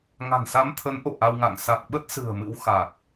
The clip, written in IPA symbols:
ŋ a̤˨˩ n s a˨˦ m t̪ʰ ə˨˦ n ʔ o̰˧˨ ʔ a˧ w ŋ a̰˧˨ ŋ s a˨˩ k̚ ɓ ə˦˥ t̚ s ɨ̤˨˩ ə̯ m ɨ̰˧˥ w x a˨˩ k̚

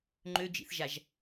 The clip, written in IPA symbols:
ŋ͡ǃ ø d͡ʒ ḭ θ ʒ a ʒ

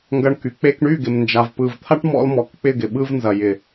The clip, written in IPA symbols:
ŋ ɡ ɐ˧ ɳ k y˨ k͡p e˧ k ɳ y˦˨ ɡ ɪ˨ m n d͡ʒ a˨ v p ɯ˨ v t̪ʰ a˦ ʈ m ɔ̰˧ l m ɔ˨ k k͡p ɪ˦˨ ɡ ɪ˨ ɓ ɯ˧ v n z ɐ˨ j ɪ˨

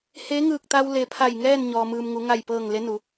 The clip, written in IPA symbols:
h e˧˥ ŋ ɯː˧˩ k̚ t̪ a˧ w l e˩ pʰ a˧˩ j ŋ ɛː˥˨ n ɲ ɔː˩ m ɯː˩ m ŋ u˩˧ ŋ a˧˩ j p ɤː˧˩ ŋ l e˧˥ n u˩˧

